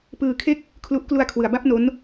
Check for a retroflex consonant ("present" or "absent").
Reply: absent